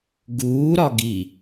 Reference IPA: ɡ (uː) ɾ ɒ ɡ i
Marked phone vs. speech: correct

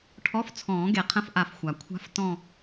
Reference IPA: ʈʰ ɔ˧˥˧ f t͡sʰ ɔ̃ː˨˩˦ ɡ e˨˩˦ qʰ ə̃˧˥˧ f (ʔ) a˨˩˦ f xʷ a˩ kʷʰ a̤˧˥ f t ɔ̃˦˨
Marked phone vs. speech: correct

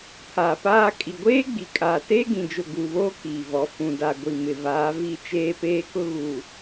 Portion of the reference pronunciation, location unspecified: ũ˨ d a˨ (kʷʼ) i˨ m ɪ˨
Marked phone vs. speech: incorrect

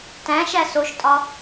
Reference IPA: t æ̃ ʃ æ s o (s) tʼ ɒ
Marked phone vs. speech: incorrect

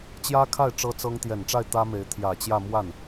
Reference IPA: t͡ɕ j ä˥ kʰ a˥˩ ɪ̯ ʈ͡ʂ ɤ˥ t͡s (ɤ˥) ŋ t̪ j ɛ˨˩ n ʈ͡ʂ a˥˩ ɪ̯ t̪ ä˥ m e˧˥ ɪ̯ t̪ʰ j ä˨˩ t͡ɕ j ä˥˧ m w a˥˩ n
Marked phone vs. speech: correct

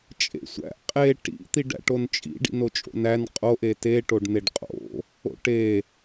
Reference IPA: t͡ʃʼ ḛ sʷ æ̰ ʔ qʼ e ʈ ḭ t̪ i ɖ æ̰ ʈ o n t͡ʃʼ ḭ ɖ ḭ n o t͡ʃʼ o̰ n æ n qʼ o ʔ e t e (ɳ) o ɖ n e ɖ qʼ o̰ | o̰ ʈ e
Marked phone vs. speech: incorrect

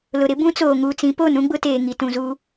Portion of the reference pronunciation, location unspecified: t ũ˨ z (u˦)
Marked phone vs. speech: correct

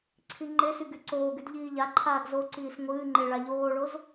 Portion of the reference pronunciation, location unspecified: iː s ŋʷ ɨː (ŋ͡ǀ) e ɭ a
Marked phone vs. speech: incorrect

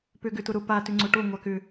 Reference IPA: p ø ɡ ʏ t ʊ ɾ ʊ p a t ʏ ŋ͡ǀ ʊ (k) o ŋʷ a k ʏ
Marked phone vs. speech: incorrect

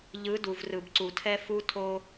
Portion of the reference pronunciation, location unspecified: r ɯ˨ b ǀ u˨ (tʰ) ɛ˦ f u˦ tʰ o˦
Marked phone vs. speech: correct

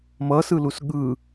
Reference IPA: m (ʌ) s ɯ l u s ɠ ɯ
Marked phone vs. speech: correct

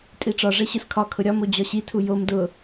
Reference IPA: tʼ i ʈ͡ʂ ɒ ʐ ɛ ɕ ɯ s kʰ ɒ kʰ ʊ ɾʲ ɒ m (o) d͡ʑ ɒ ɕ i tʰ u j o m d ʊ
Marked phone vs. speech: correct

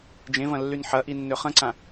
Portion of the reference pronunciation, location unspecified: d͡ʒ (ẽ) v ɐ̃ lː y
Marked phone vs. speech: correct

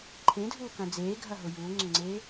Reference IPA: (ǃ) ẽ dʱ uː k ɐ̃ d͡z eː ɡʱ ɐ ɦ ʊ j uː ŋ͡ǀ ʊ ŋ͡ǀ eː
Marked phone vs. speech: incorrect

